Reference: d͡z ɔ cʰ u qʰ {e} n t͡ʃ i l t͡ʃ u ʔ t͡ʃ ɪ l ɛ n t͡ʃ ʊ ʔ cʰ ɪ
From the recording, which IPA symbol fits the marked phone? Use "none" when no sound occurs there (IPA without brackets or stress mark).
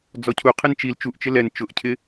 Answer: e